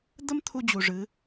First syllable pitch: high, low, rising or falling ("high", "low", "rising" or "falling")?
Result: high